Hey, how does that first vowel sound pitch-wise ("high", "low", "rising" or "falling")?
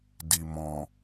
low